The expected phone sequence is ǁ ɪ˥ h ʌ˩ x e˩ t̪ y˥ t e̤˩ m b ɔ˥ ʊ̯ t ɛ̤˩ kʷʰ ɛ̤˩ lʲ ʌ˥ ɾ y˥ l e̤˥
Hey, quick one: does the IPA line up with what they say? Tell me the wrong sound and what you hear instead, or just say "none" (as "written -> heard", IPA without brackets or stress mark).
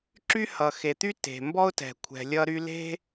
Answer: ɪ˥ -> y˥